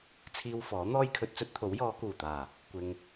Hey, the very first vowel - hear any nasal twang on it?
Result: no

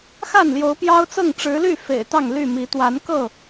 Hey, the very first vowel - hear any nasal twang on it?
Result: no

